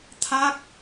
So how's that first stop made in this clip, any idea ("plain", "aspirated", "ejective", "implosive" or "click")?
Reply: aspirated